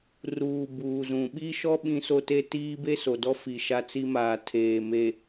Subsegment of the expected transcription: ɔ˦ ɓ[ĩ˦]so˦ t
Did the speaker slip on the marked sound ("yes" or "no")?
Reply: no